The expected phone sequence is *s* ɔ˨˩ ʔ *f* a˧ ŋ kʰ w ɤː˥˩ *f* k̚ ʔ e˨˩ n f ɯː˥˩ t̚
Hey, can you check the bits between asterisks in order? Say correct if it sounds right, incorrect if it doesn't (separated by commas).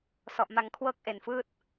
correct, incorrect, incorrect